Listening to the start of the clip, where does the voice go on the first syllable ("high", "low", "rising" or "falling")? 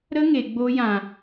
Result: high